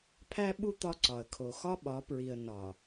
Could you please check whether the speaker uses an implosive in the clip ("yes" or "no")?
yes